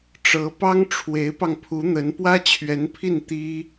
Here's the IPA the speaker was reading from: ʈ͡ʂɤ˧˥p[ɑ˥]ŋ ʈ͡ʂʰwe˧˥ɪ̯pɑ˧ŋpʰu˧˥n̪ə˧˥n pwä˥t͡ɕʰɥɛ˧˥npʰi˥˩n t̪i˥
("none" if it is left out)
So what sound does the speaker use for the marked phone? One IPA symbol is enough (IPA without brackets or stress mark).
ɑ˥